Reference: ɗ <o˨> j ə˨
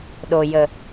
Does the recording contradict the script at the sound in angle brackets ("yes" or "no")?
no